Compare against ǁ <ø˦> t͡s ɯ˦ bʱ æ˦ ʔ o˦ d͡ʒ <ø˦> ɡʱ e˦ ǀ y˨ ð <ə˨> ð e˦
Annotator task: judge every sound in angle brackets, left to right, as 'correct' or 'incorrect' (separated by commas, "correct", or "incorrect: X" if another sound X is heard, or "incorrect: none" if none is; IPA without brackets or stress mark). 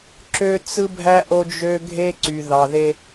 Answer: correct, correct, incorrect: ɑ˨